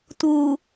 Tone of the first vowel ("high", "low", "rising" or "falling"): low